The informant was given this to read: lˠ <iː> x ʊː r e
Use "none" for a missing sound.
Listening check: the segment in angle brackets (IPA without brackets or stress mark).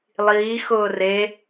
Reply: iː